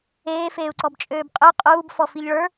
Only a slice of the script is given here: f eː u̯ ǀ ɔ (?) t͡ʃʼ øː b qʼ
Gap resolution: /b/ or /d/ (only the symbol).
b